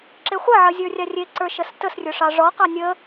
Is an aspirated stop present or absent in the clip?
absent